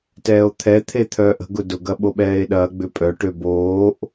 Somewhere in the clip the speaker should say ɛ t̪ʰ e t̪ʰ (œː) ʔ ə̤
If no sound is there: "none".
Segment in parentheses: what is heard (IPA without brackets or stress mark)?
œː